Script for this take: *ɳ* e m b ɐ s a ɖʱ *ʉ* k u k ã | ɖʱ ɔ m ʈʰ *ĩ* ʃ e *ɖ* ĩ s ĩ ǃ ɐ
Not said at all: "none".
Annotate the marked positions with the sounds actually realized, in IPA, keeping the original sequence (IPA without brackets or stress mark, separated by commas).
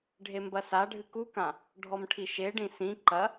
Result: ɖʱ, ɨ, i, ɖ